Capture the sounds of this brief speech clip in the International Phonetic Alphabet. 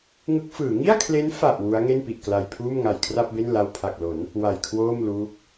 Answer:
ŋɯ˦˥k̚fɯː˩˦ ŋi˥˩a̯kʰle˦˥n fa˨˩ʔ wu˦˥a̯ ŋe˥˩npi˨˩ʔ kla˧jpʰuː˥˩m ŋa˨˩jkʰra˥˩p̚be˥˩n la˧wpʰa˨˩k̚lo˩˦n | wa˨˩jkʰwoː˥˩mluː˦˥k̚

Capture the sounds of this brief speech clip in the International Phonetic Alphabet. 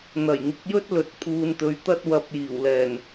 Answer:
n̪ɐ˨˩jŋɪ˨˥k̚jɵ˥t̚ lɵ˨˥t̚ pʰuː˨nt̪ɵ˨˧ɥ t̪ɐ˥t̚wɐ˧p̚ jiː˨˩wlɛː˨˩n

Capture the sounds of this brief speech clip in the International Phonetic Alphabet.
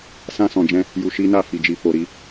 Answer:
sã˧sɔ̃˨d͡ʒɛ̃˧ | ju˧ʃi˦na˦˨ fi˨d͡ʒi˨ fo˨ɾi˧

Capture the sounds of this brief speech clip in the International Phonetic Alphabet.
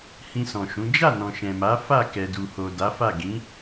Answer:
hĩ˧sɔ̃˨ʃũ˨˦ d͡ʒa˦˨nɔ̃˨ ʃɛ̃˨ma˨˦ fa˦˨ kɛ˨du˨ho˨ da˨˦fa˦˨ ɡĩ˨˦

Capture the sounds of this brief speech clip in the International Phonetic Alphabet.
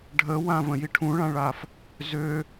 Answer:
ɖʱəwãvə̃ji ʈʰũɭãɭaf | zø

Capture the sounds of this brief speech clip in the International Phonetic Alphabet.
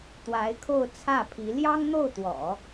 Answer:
t̪wa˧˥ɪ̯kʰo˥˧ʊ̯ t͡sʰä˥˩pʰi˧˥ ljɑ˥ŋn̪o˥˩ʊ̯t̪wɔ̰˨˩˦

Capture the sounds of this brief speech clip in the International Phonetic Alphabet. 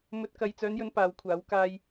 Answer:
mɵ˧t̚ kɐ˨jt͡sœː˨˧njɵ˨˧n paː˨˧wkʷʰaː˨˥w kaː˧j

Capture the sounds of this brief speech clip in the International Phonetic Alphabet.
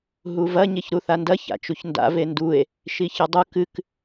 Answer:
ɦuvɐ ɲeçɾuθandɐ ça̰t͡ʃuçnda̰ vendue̯ | ʃiçɨdˤu kɨk

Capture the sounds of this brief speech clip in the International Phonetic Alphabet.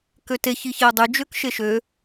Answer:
køte çiçeo̯dˤy d͡ʒøkʃeʃø

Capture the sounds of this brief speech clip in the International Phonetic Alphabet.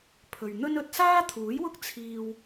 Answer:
pʰɵ˨ɥn̪ɵ˥n ɵ˨t̚ saː˥t̪ʰuː˨˥jwʊ˥k̚ t͡sʰiː˧w

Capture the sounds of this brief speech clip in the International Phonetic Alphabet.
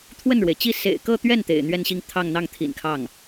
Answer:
t̪ʰwə˥˩nɻwe˩ɪ̯t͡ɕi˥˩ sḛ˨˩ɪ̯kɤ˥˧t̪ɥɛ˥˩n t̪ḛ˨˩ɪ̯n̪ɥɛ˥˧nɕi˥˧ŋ t̪ʰɑ˥˧ŋn̪ɑ˥˩ŋt̪ʰḭ˨˩n kʰɑ˥˩ŋ

